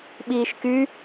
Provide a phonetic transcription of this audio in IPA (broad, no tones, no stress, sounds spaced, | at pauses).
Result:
ɓ iː ʃ k y